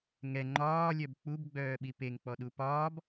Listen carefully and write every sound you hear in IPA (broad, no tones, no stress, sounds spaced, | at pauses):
ŋ ɛ ŋ͡ǃ ɒː lʲ œ b k͡p u b ɡ͡b œː ɓ i p e ŋ k͡p ɔ ɗ u p ɒː b